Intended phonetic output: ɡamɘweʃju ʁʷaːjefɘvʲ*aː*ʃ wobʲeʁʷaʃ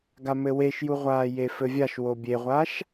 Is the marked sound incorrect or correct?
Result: incorrect: a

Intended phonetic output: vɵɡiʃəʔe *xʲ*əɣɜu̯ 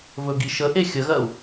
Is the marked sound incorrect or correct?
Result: correct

